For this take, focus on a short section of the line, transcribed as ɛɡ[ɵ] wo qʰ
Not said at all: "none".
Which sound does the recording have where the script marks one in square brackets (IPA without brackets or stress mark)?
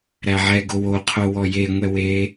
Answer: o